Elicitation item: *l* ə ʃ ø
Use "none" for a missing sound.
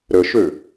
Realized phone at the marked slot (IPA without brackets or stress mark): ɾ